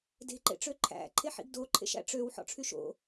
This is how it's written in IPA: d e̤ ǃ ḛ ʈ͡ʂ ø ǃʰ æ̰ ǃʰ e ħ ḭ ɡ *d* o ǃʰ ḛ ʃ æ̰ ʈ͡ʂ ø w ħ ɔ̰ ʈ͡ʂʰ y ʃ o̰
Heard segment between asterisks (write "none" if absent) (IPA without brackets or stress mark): d